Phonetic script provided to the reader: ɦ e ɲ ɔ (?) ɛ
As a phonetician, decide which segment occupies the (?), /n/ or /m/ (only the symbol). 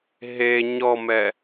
m